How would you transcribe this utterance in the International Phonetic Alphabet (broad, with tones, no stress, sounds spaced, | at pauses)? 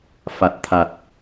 f a˨˩ t̚ t̪ʰ a˨˩ t̚